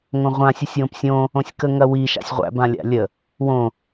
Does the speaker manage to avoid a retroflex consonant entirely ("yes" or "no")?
yes